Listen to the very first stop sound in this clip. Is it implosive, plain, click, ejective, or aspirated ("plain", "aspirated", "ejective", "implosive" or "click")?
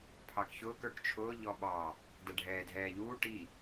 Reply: aspirated